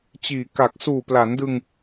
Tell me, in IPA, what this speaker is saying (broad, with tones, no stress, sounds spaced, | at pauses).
t͡ɕ iː˨˩ k a˨˩ k̚ s uː˨˩ p l a˩˦ n d ɯ˧ ŋ